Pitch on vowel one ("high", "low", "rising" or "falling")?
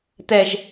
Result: low